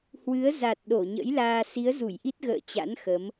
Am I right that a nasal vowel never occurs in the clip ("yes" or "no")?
yes